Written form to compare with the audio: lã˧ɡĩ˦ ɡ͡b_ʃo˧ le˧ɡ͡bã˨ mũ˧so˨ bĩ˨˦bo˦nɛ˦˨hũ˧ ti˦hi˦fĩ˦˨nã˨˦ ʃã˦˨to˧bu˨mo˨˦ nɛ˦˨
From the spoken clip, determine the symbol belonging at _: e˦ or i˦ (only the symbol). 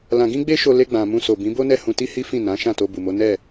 e˦